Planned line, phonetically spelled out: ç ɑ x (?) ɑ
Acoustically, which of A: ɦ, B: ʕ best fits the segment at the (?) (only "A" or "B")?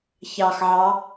B